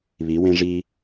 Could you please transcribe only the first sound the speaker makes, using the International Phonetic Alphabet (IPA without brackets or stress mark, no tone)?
β